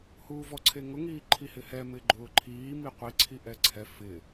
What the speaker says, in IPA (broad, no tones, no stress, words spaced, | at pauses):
huːvɔǀʰeŋʊ ŋiːǃʰihɪhɛ mɪɡ͡ǃʊːǃʰiː miqʷi ǀʰiʔɛǀʰɛ fɪ